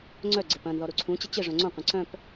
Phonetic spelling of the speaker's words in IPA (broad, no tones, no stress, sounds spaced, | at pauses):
ŋ͡ǀ œ ɡ͡ǀ ɪ p ɐ̃ n ð ɔ ɾ u ǀʰ ũ t͡ɕ ɪ t͡ɕ ɪ ʐ œ̃ ŋ͡ǀ õ qʷ ɐ̃ ǀ œ̃ p